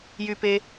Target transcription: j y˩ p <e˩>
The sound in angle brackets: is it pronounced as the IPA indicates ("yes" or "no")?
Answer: yes